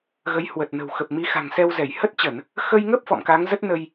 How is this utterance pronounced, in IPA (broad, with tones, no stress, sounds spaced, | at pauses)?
ɣ ə˨˦ j h w ə˨˩ t̚ n ə̤˨˩ w x ə˨˩ p̚ m i˨˦ x a̤˨˩ ŋ s ɛ˧ w z ɛ˧˩ j h ə˦˥ t̚ t͡ɕ ə˧˩˨ n | x ə˧ j ŋ ə˦˥ p̚ f ɔ̰˧˨ m k a˨˦ ŋ z ə˦˥ t̚ n ə˧ j